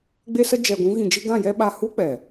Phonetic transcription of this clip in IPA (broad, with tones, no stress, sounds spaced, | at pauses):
ɡ͡b e˦ s ə˦ d͡ʒ ɛ˧ ɡʷ ũ˦ ɣ ĩ˧ d͡ʒ ɨ˦ ɡ ã˦˨ j ɛ˦ ɓ a˧ h u˦ k͡p ɛ˨